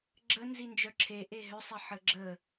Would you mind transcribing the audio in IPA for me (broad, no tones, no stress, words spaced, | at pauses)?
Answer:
ɡ͡ǁə nzind͡ʒœǁʰe ʔeɦʏ sˤɪħəɡ͡ǁə